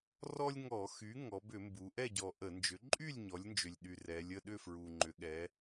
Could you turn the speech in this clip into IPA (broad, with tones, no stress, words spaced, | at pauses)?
rɔ˦lʲŋɔ˧˩˧xy˩˥ ŋɔ˩˧bʏ˧˩˧mbu˩˧ ʔɛ˥˨ɟɔ˨˩ ʔə˧˩˧nd͡ʒʏ˩˥ ǃʼy˥˨lʲ ɲɔ˩˥lʲnd͡ʒʏ˨˩lʲɗy˨˩ rɛ˩˧lʲə˥˨ ɗʏ˥˨fɹu˨˩ ŋ͡ǃʏ˩˧ɠɛ˩˧